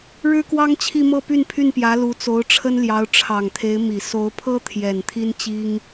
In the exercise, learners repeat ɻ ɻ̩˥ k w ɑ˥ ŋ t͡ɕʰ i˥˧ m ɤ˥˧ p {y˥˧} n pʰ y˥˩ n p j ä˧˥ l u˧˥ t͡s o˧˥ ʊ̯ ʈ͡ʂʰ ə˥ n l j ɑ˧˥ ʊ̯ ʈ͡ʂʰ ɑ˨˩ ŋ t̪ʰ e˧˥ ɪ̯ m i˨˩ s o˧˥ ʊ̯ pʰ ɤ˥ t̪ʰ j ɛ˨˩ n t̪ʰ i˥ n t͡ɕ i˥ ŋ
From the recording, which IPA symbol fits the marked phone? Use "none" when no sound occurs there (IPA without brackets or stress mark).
y˥˧